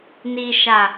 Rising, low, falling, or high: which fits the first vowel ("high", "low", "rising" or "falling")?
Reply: low